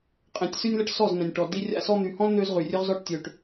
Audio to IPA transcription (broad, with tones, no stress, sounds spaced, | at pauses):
qʼ ẽ˨ tʲ s y˦ nʲ l ə˦ ʈ s ɔ˦˨ z n̪ ɛ̃˨ nʲ ʈ ɔ˨ d i˦ rʲ a̰˦ s ɔ˦ n̪ y˨ h ɔ̃˦ l n̪ ø˦ z ʁ y˨ rʲ ø˦ ʁ z ɔ˦ ʈ tʲ ø˨ ʈ